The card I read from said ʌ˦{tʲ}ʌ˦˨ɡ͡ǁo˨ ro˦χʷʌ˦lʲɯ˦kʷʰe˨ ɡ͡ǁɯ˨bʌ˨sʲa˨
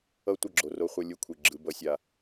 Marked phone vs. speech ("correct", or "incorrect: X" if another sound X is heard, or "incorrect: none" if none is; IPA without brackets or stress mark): incorrect: tʷ